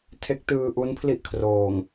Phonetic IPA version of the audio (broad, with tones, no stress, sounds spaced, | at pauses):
tʰ e˦˥ k̚ t ɯː˧ ʔ u˦˥ n pʰ l i˦˥ ʔ kʰ r oː˨˩ ŋ